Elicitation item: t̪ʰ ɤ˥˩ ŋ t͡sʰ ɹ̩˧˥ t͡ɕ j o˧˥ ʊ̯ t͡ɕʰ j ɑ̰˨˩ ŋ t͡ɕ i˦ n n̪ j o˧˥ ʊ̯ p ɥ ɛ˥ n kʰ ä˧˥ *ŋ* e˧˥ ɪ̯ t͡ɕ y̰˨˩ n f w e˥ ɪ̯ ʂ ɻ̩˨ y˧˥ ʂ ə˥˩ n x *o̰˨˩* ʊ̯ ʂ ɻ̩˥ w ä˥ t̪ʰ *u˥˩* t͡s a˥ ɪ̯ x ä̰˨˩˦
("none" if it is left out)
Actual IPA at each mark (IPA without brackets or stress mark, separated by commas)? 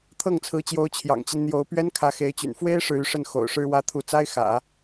x, o̰˨˩, u˥˩